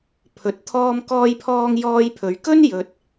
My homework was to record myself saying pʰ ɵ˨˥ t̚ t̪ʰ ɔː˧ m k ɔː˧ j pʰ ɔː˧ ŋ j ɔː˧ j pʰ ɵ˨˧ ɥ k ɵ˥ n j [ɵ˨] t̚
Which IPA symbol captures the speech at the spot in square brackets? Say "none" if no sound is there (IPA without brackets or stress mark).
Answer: ɵ˨